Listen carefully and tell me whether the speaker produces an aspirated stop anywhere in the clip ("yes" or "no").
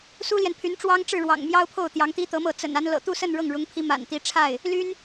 yes